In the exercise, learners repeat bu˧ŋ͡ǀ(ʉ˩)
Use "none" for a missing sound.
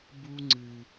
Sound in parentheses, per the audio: ɨ˩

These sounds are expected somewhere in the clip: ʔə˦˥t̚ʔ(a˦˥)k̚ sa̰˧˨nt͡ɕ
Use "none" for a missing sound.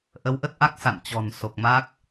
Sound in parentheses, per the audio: a˦˥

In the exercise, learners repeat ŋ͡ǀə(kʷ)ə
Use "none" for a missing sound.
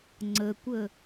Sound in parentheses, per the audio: kʷ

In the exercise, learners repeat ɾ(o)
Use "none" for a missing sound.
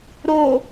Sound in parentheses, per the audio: o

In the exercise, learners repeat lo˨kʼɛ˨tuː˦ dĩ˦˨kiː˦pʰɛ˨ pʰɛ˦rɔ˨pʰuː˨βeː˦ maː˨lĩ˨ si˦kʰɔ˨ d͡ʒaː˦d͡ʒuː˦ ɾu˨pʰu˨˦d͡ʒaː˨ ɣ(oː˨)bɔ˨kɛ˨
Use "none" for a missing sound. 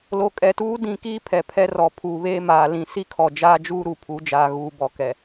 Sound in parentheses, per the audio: uː˨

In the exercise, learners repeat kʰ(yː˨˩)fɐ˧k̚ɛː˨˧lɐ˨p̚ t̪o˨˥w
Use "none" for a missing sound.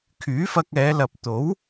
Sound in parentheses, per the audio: yː˨˥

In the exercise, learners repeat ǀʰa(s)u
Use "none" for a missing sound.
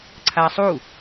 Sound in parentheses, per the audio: sˤ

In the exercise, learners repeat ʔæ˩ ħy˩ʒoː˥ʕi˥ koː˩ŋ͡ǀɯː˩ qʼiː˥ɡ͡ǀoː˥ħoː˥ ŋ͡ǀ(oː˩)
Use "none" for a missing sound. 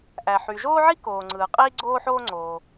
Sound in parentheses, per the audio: oː˩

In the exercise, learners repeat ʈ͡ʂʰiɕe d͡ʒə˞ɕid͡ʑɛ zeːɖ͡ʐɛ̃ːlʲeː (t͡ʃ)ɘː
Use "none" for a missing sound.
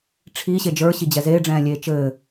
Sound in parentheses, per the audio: t͡ʃ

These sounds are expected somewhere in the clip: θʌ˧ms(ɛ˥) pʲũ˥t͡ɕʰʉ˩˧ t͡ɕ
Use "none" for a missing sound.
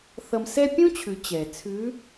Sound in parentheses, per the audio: ɛ˥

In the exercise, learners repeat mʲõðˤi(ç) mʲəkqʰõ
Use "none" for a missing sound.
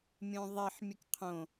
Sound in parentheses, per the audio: ħ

